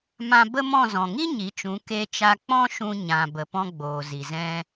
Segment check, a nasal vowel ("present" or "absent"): present